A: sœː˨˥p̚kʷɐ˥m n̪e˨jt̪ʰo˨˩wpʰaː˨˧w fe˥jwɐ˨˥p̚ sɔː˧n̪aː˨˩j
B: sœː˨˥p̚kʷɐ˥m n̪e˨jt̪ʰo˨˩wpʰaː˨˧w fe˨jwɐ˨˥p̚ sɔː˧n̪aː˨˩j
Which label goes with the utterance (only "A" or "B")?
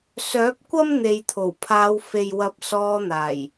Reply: B